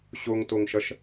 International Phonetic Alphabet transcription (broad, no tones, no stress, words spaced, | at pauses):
ɕoŋtoŋʃʌʃ